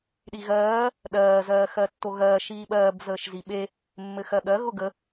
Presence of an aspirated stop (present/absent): absent